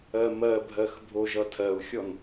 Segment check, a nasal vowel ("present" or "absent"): absent